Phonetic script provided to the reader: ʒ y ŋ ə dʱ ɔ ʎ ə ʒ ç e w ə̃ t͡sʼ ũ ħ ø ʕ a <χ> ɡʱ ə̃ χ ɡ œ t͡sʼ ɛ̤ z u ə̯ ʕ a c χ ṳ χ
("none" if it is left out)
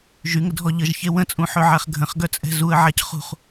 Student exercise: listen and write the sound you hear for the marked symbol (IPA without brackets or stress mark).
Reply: χ